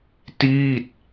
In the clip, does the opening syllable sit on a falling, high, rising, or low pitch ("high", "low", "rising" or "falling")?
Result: falling